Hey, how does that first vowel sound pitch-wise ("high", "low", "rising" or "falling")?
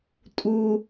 high